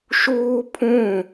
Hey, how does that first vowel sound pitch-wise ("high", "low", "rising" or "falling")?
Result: high